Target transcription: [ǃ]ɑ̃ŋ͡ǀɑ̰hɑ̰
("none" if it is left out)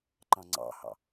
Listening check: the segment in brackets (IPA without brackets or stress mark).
ǃ